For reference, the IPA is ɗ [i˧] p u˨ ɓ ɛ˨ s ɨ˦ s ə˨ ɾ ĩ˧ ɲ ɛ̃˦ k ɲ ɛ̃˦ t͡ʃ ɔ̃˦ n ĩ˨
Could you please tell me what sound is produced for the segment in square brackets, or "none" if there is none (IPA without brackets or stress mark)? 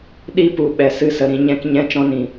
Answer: i˧